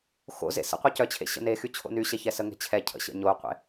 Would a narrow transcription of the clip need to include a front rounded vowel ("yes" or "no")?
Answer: yes